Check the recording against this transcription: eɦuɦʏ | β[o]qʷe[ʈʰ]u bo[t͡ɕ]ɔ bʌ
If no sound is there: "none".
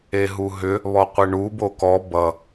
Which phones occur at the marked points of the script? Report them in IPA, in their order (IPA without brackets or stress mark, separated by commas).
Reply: ɔ, ɳ, k